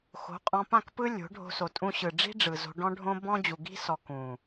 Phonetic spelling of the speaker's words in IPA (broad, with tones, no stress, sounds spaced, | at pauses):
x o̤˨˦ qʼ ɔ̃˧ p ã˦˨ k p ɯ˦ lʲ o̤˨˦ ɖʱ o̤˧ s o˨ tʼ ũ˧ ɕ ɯ˨ ɖ͡ʐ i̤˦ ɖ͡ʐ ɯ˨ z o̤˧ ɖ ɔ̃˦ ɖʱ õ˦ b ɔ̃˦ d͡ʑ u˨ ɡ i̤˦ s ɔ˨ k ũ˨